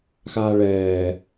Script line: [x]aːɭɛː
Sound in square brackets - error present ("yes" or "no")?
no